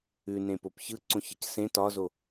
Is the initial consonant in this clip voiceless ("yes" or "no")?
no